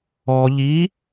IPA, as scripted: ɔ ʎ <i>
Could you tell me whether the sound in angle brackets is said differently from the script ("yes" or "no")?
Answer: no